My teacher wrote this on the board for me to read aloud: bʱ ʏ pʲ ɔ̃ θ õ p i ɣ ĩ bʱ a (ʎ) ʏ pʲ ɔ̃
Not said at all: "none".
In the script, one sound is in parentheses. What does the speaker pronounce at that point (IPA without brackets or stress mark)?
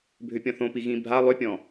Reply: lˠ